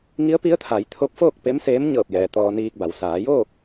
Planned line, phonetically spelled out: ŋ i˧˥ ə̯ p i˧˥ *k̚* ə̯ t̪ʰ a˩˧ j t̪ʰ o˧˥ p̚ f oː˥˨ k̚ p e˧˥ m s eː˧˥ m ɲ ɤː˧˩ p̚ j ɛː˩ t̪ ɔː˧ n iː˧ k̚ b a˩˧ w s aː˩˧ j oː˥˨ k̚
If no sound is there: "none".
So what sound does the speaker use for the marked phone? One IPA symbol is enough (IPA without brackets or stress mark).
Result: none